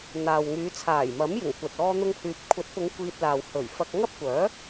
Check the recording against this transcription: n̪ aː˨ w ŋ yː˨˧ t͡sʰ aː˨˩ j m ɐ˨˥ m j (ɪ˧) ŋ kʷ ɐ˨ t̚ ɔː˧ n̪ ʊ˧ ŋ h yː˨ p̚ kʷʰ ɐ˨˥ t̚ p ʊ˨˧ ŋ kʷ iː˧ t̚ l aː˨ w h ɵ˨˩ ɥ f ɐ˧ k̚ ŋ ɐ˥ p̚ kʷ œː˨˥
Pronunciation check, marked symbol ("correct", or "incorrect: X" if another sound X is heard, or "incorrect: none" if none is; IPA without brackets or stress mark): incorrect: ɪ˨˩